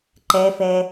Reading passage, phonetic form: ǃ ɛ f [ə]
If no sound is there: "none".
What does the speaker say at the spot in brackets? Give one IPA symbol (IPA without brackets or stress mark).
ɛ